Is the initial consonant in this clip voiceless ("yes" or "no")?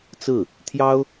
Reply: yes